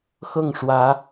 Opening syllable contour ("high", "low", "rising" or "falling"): falling